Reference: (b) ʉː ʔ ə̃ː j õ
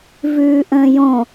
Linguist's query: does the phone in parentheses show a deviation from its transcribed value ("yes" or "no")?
yes